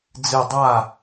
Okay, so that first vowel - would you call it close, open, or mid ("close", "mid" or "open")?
close